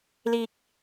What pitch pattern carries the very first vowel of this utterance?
low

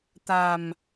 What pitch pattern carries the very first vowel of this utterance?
low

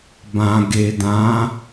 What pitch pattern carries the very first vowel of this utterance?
low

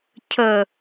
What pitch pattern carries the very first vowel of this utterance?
low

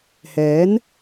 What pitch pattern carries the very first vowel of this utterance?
rising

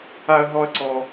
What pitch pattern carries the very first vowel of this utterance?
high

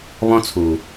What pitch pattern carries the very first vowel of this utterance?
high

